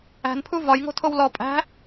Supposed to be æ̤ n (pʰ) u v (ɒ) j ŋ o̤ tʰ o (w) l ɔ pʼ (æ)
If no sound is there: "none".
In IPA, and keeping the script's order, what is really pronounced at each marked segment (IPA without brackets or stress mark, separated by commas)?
pʰ, ɒ, w, æ̤